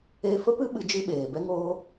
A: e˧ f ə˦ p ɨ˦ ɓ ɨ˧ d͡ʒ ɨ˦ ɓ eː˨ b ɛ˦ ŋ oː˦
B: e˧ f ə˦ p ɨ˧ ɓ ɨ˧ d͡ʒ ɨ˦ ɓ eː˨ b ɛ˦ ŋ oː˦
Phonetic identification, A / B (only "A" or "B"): A